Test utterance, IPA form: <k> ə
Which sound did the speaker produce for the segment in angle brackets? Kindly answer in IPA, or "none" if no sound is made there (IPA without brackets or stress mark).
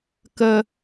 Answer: k